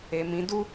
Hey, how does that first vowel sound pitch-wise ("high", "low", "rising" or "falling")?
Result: low